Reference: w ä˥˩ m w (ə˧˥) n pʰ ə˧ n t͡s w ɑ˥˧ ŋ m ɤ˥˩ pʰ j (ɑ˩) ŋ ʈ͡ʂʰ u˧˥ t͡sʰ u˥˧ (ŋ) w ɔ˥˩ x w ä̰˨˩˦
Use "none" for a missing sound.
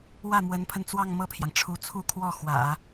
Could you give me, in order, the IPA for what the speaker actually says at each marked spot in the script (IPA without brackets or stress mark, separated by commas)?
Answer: ə˧˥, ɑ˩, kʰ